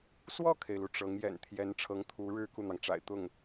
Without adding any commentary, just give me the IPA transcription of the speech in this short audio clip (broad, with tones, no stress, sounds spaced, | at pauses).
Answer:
s w ɔ˥˩ kʰ e˩ ɪ̯ l u˩ ʈ͡ʂ ɤ˧˥ ŋ j ɛ̰˨˩ n t̪ʰ j ɛ˧˥ n ʈ͡ʂʰ ɤ˧˥ ŋ t̪ʰ u˧˥ ɻ ɻ̩˥ k u˥˩ n̪ ɑ˩ ŋ ʈ͡ʂ a̰˨˩ ɪ̯ t̪ ʊ˥˩ ŋ